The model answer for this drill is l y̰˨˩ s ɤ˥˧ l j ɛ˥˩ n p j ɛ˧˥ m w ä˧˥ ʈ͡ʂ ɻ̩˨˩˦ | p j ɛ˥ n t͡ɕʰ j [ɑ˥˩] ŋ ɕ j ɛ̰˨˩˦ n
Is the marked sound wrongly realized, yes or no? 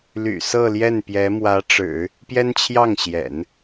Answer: no